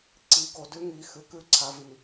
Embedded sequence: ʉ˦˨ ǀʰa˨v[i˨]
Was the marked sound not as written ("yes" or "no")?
no